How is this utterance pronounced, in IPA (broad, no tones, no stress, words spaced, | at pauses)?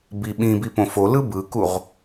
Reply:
bi ɓĩbi põfolɯ bɯkuʁ